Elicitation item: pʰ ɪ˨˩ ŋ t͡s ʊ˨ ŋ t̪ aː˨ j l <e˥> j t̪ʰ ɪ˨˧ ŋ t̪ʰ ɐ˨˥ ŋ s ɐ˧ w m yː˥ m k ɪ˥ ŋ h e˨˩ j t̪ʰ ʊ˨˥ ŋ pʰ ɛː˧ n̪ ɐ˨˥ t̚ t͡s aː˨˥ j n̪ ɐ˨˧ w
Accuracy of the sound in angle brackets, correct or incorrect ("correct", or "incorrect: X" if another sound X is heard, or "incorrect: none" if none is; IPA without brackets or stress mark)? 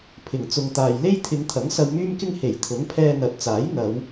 correct